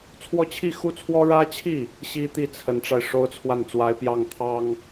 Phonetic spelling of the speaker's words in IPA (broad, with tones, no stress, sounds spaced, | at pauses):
t͡sʰ w ɔ˥˧ t͡ɕʰ i˥˩ x u˥ t͡sʰ w ɔ˥ ɻ ä˥ t͡ɕʰ i˥˩ | ɕ i˥ t̪ i˥˩ t͡sʰ ə˧˥ n ʈ͡ʂ a˧ ɪ̯ ʂ o˥ ʊ̯ t͡sʰ w a˥˩ n t͡s w a˧˥ ɪ̯ p j ɑ˥˩ ŋ t̪ʰ ɑ˥ ŋ